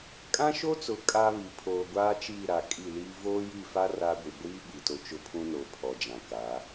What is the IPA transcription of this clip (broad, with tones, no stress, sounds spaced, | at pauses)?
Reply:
kʼ ã˦ ʃ o˦ t͡s ʊ˨ kʼ a˦ β i˨ pʰ oː˨ ɡʷ aː˦ t͡ʃ iː˦˨ ɾ a˨ kʼ i˦˨ l iː˦ v oː˦ j i˦˨ f a˦ r a˦ ɡʷ i˨ ɡʷ iː˦ ɓ i˨ t o˦ t͡ʃ ʊ˦ pʰ ũ˦ n o˨ pʰ ɔ˨ d͡ʒ ã˨ k a˨˦